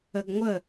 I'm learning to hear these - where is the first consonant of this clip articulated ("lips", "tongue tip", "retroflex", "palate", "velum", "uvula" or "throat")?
velum